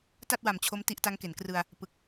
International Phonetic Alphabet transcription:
t a˥˩ t̚ w a˨˩ m t͡ɕʰ o˦˥ m t i˦˥ ʔ t a˦˥ ŋ k e˩˦ n k r ɯ˧ a̯ | p ɯ˨˩ k̚

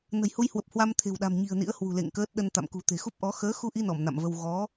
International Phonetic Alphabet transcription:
n ə̤˨˩ j h u˧ j h w ə˨˩ p̚ h w a˧ m t̪ʰ e̤˨˩ w ɗ a̤˨˩ m ɲ i̤˨˩ ə̯ n ḭ˧˥ ə̯ h w ṳ˨˩ l ḛ˧˨ ŋ k əː˦˥ t̚ ɗ ə˧ n t̪ a̰˧˨ m k ṳ˨˩ t̪ e̤˨˩ x u˦˥ p̚ ʔ ɔ˨˦ x əː˨˦ x u˧ ʔ i˧ n ɔ˧˩ m n a̰˧˨ m v ə˧ w ɣ ɔ˨˦

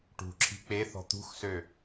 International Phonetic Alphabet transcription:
ʈ ṳ ǁʰ i̤ k͡p e θ ɔ̤ t̪ ṳ x s ø

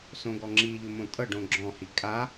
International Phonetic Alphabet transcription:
s õ ɡ ɔ ŋ͡ǁ i ʎ ʊ m õ tʼ ɤ ɖ õ ɡ͡ǁ ɔ̃ h i kʼ a

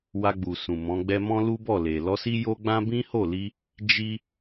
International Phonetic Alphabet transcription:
w a˧ ɡ͡b u˨ s ũ˨ m ɔ̃˨˦ ɡ͡b ɛ˦ m ɔ̃˦ l u˦ b ɔ˦˨ l e˨ l ɔ˧ s i˦ j o˦ ɡ͡b ã˦ b ĩ˦ h o˦˨ l i˧ | d͡ʒ i˦

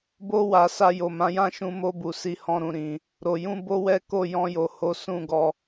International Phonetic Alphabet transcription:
b o˧ w a˨ s a˧ j o˨ m ã˨˦ j ã˦ ʃ ũ˧ m o˧ b u˨ s i˨ h ɔ̃˨ ɾ ũ˨ ɾ ĩ˨ | ɾ o˨ j ũ˧ b o˦ w ɛ˦ k o˦˨ j ɔ̃˧ j o˨ h o˨˦ s ũ˦˨ ɡ ɔ˧

